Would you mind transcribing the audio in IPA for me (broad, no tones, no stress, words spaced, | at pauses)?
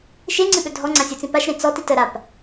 ʃeŋ͡ǀɨɓɵ dʱɔŋ͡ǀãsʲut͡sĩ paʃɾẽ t͡sɔtit əɾap